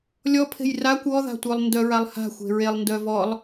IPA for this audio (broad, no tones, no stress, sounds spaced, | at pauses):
lʲ ɔ pʰ e̤ j r a kʷ ɔ ð a̤ tʷ œ lˠ n d œ ɹ a lˠ h a̤ xʷ e̤ ɹ e lˠ n d œ v ɔ lˠ